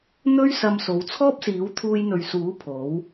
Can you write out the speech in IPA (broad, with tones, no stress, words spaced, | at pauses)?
n̪ɵ˥ɥsɐ˧m so˨˧wt͡sʰɔː˥p̚siː˨˥w t̪ʰuː˧jn̪ɵ˨ɥsuː˨˥ pʰo˨˥w